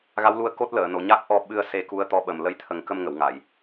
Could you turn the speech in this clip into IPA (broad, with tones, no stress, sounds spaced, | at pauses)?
ɣ a˧˥ w l u˧ ə̯ k o˦˥ t̚ l əː˨˩˨ n o˨˩ ɲ a˦˥ k̚ ʔ ɔ˧ ɓ ɨ˧ ə̯ s e˧ k u˧˥ ə̯ t̪ ɔ˧˥ ɓ ə˨˩ m l ə˧ j t̪ʰ ə˨˩˦ ŋ k ə˧ m ŋ ə˨˩˨ w ŋ a˨˩˨ j